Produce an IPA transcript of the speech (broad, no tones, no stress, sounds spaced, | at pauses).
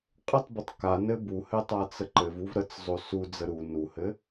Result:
qʼ ɘ tˤ b ə tˤ k a n ɘ b u h ɘ tˤ a t͡s ə ǃ ɘ v u v ɾ ə t͡s zˤ o s u d͡z ə ɾ u n u h ɘ